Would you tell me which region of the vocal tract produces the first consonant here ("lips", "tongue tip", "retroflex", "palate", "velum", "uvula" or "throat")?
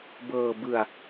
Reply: lips